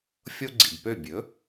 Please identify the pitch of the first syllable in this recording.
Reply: high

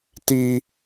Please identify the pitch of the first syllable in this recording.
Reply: high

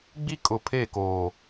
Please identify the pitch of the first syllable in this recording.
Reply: high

